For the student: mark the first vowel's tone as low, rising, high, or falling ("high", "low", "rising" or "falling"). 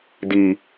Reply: low